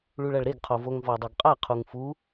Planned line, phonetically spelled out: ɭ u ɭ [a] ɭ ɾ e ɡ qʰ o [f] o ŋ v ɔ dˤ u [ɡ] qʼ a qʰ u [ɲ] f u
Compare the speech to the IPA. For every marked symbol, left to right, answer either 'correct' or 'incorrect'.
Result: correct, incorrect: v, correct, incorrect: ŋ

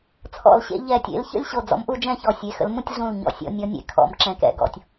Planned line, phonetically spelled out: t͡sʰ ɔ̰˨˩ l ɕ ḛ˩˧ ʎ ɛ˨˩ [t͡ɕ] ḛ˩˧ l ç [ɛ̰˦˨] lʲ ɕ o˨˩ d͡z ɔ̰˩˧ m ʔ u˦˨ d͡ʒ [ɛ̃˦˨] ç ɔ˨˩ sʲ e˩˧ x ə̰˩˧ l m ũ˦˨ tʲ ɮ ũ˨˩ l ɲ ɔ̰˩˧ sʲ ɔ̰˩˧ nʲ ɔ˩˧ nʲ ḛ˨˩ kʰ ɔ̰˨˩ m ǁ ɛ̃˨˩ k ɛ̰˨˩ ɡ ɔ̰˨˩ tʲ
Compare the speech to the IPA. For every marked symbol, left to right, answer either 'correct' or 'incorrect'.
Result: incorrect: tʲ, incorrect: ə̰˦˨, correct

